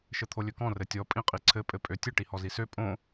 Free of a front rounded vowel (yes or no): no